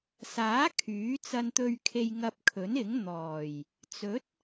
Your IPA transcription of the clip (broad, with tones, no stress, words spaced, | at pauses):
saː˨˥ kʰyː˨˥t͡sɐ˧n t̪ɵ˨ɥkʰe˨j ŋɐ˧p̚kʰɵ˨˥nɪ˨˥ŋ n̪ɔː˨˩j | t͡sɵ˨˥t̚